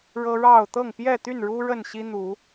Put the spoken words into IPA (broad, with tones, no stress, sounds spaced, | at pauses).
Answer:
ɻ ɤ˦ ɻ ɑ˥˨ ʊ̯ t̪ ɤ˥˨ ŋ p j ɛ˥˨ t̪ y˥˨ n ɻ u˦ ɻ ə˥˨ n ɕ i˦ n̪ u˨˦